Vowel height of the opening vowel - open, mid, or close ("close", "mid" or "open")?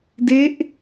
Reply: mid